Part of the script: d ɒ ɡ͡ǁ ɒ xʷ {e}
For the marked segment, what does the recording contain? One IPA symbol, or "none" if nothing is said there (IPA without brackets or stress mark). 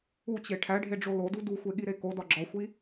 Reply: i